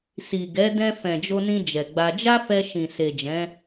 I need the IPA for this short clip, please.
s i˨ ɡ ɛ˨˦ d ɛ̃˧ f ɛ̃˨ d͡ʒ o˧ n ĩ˧ d͡ʒ ɛ˨ ɡ͡b a˧ d͡ʒ a˦ f ɛ˧ ʃ ĩ˨ s e˨ d͡ʒ ɛ̃˨˦

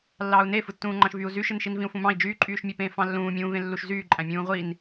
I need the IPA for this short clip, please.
lː ɑː u̯ n e f ɯ tː ũː ŋ͡ǃ ɑ̃ ʃ v y u̯ z y ʃ ɯ n ʃ i n v ĩ u̯ f ũ m ɑ̃ i̯ d͡ʒ yː ǃʼ yː ʃ mʲ e p ẽː f ɑ̃ lː ũː mʲ ũː v ẽ lː u ʃ z yː ǃʼ æ̃ mʲ ũː ʁʷ i n

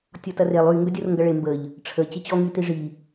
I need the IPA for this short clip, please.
tʲ ɔ t ɐ r e lˠ y ŋ ɡ œ dʲ o r ŋ ɡ ɐ ɭ e m b ə ʎ | ʈ͡ʂʰ ə t͡ɕ e t͡ɕ ɔ ŋ y t i ʐ i

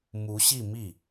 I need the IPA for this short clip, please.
m u˧˥ ɕ i˥˧ m i˥˩

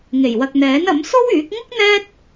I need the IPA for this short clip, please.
ŋ e˨˩ j w ɐ˨ k̚ n̪ ɛː˨˥ n ɐ˨˥ m s o˥ w yː˨˥ k̚ ŋ ʊ˥ k̚ n̪ ɛː˥ t̚

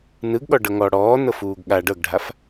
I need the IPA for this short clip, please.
n ɯ ɡ ɠ ɔ ɖ ɤ ŋ ɔ ɽ ɔː n ɤ f uː ɡ ɠ a ɖ ɤ ɡ ɖʱ a f

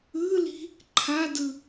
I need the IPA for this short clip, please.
ɯ l i̤ | ǃʰ a d ɯ

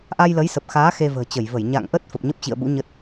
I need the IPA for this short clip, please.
ʔ a˧ j l ə˨˦ j s ə˨˩ p̚ x aː˨˦ x e˧ v ə̤ː˨˩ t͡ɕ ə˧˩ j v ə˧˩ j ɲ a̰˧˨ ŋ ʔ ə˦˥ t̚ f ə˨˩ p̚ ɲ ə˦˥ p̚ t͡ɕ ḭ˧˨ ə̯ ɓ ṵ˧˥ ɲ ə˦˥ t̚

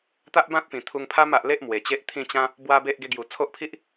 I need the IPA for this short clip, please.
t̪ a˦ ʔ b ã˦ t̚ p ĩ˨˩ t̪ʰ u˧ ŋ pʰ a˦ m a˨ ʔ l e˦ ʔ m w e˨˩ t͡ɕ e˦ ʔ t̪ʰ ĩ˥˧ t͡ɕ ã˦ | b w a˦ b e˦ ʔ ɡ e˧ ɡ j u˨˩ t͡sʰ o˦ ʔ pʰ i˦ ʔ

